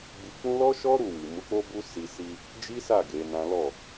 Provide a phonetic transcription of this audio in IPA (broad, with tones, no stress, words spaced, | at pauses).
ɡ͡bi˧k͡pũ˦ lɔ˦ʃɔ˦ ɾu˦˨wi˨ mu˨˦ k͡po˦bu˦ si˧ si˧ | d͡ʒi˦sa˦˨ ɡe˨˦nã˦ lɔ˦˨